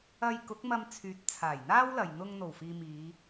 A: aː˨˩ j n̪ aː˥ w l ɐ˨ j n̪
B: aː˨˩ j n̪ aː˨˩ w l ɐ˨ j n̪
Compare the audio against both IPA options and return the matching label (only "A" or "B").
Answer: A